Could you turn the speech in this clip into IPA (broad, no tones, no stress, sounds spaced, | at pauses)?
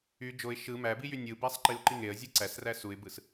y d͡ʒ o ɪ̯ ʃ ɯ m æ b i j y nʲ ɯ b æ sˤ ǃ i ʊ̯ ǃ i ŋ e ə̯ zʲ ɯ ǀ æ s r æ s u ɪ̯ b ɯ s